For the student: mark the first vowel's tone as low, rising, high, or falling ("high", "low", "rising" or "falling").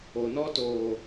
low